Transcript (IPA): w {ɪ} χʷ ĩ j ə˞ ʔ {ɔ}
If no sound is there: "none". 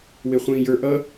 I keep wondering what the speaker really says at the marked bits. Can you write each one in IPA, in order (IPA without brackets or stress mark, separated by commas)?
ɪ, ʌ